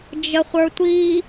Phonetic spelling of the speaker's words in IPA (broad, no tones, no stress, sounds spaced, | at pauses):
d͡ʒ ə χʷ ə˞ tʷ i